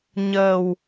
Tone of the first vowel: low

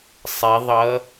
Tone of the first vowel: rising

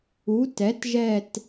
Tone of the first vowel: rising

